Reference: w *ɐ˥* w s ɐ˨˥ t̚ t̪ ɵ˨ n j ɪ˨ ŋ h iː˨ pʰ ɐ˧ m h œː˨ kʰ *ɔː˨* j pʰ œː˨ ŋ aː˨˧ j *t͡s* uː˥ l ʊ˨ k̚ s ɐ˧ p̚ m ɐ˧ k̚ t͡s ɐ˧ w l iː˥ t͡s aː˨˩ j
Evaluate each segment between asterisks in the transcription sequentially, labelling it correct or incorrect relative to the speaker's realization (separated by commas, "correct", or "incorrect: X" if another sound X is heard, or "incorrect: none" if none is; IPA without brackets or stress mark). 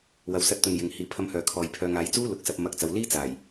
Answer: incorrect: ɐ˨, correct, correct